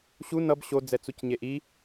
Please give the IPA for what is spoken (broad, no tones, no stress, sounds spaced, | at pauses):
ɕ u n ʌ b ɕ o d͡z ɛ t͡s u c ɲ e ʔ i